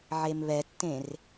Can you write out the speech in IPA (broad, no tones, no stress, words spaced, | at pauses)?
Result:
ʕemβɛtːẽr